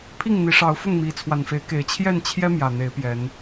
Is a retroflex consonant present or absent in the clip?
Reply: present